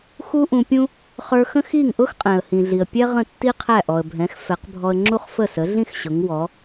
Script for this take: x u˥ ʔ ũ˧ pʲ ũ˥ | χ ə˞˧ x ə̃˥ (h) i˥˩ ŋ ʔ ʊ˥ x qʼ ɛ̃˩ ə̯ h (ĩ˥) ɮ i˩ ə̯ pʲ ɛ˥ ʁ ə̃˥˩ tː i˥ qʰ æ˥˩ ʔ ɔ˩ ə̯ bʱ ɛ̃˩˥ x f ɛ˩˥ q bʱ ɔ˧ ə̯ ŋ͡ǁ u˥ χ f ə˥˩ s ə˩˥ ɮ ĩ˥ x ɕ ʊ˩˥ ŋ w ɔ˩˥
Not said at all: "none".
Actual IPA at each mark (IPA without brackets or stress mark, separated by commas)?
x, ĩ˩